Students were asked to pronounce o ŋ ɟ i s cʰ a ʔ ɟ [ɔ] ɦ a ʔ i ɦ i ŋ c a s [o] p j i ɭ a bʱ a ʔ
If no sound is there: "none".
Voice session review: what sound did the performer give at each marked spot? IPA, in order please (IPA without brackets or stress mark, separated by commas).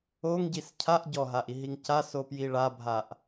ɔ, o